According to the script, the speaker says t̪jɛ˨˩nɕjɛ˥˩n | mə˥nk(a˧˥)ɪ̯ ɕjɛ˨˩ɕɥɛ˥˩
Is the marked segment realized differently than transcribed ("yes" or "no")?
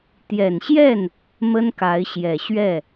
no